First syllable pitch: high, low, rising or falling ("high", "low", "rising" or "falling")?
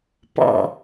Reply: low